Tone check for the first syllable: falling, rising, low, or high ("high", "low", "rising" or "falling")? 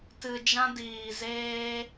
low